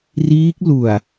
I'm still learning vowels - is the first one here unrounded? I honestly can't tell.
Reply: yes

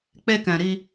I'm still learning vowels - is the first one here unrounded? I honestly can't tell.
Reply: yes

